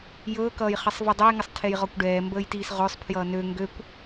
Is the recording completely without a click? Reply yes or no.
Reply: yes